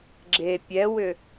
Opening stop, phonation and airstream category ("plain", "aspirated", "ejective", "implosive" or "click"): click